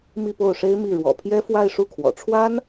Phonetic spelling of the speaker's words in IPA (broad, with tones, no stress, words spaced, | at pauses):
mi˥˧po˥˩ʊ̯ʂe˥ɪ̯mi˥˩ ɻwɔ̰˨˩pʰjɛ˥ fwa˥˧ɪ̯ʂu˥˩kʰwɔ̰˨˩ʈ͡ʂʰwa˥n